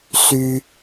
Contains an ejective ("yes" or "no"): no